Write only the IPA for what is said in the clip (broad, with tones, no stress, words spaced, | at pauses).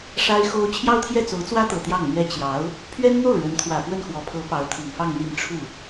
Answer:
ʂa˥ɪ̯xo˥ʊ̯ t͡ɕʰjɑ˥ʊ̯t̪ʰjɛ˥˩ t͡so˧˥ʊ̯t͡swä˥t̪ɤ˨˩ t̪jɑ˥˩ŋn̪ɥɛ˥ t͡ɕjɑ˧˥ʊ̯ | pʰɥɛ˥nn̪o˥˩ʊ̯ ɻə˧˥nt̪ʰwä˨˩ pwə˥˩nxwɔ˨˩pʰɤ˧˥ pɑ˧˥ʊ̯t̪ʰi˨˩ŋfɑ˥˧ŋ n̪i˥˧n ʈ͡ʂʰu˥˩